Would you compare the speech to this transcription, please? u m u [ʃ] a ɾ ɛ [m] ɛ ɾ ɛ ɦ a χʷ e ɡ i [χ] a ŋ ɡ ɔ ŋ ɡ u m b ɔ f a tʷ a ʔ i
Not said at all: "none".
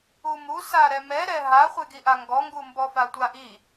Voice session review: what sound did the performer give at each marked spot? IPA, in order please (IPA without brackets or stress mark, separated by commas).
s, m, ʔ